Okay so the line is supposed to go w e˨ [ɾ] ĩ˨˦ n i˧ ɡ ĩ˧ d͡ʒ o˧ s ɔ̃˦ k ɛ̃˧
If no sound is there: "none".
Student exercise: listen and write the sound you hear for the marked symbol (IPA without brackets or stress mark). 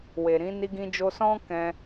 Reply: ɾ